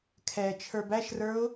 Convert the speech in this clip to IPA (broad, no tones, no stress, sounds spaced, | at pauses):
kʰ ɛ t͡ʃʰ ə˞ b æ ʃ r ə˞ ʊ̯